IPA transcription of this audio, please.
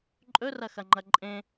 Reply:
ǃʼ ɵ r ɐ x ɐ ŋ͡ǃ ɐ ǃʼ ẽ

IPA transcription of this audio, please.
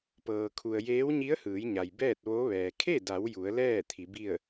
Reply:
p ɤː˩ kʰ u˩ ə̯ j eː˧˥ w ɲ i˧˥ ə̯ h ɯː˩˧ j ɲ a˩ j b ɛː˥˨ t̚ ʋ o˧˥ ʋ ɛː˩ kʰ e˥˨ d a˩˧ w j u˩˧ ə̯ l ɛː˥˨ t̪ʰ i˩˧ b i˥˨ ə̯

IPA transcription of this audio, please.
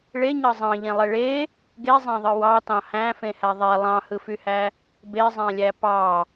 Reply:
ɭ e ɲ ɑ zˤ ɑ̃ ʎ ẽ lˠ e ɭ e | ɡ e zˤ æ̃ ðˤ ɯ w ɑ t ɑ̃ h æ̃ f ẽ h æ ðˤ e lˠ ɑ̃ h ɯ f y h æ | b e zˤ æ̃ lʲ æ p ɑ

